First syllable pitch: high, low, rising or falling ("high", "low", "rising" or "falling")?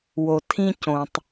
low